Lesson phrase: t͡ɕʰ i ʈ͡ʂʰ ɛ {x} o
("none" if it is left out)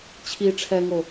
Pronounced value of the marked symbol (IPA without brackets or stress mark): ŋ